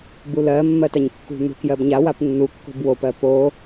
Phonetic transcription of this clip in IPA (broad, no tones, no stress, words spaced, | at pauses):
bulɜ mːɜtaɲkːṳ n̪ṳkjɜbɲa wapnːu kːo̤bwop ɜpo